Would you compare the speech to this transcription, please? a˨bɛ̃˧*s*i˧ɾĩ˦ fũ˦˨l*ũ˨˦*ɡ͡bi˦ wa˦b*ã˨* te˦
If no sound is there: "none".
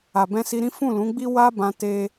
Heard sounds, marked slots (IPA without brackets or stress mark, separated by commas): s, ũ˨˦, ã˧